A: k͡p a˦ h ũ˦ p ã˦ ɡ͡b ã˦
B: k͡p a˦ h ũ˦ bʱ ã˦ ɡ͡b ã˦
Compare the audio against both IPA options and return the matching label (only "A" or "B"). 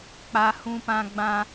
A